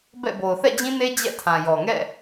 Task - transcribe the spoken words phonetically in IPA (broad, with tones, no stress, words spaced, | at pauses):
bɛ̰˦˨bo˨ʊ̯ θɛ̰˦˨d͡ʑĩ˦ne˦ d͡ʑɛ̰˦˨tʰã˨jɔ˨ ŋɛ̰˦˨